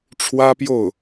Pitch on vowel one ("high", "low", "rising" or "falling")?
high